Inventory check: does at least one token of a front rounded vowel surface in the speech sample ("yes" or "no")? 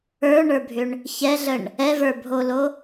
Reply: yes